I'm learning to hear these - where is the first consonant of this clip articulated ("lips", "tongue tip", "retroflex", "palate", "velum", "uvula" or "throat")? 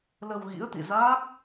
tongue tip